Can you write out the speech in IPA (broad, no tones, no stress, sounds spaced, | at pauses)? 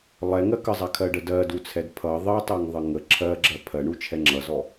lˠ ɛ ŋ ɜ k ə zˤ a kʰ ɜ ɖ ə d ɜ d u t͡sʰ ɛ d pʰ ʌ ðˤ ɜ tˤ ɜ ŋ ðˤ ə ŋ ə ǁʰ ɜ ɡ͡ǁ ɜ pʰ ɜ ɳ u t͡ʃʰ ɛ ŋ͡ǁ ʌ z ɔ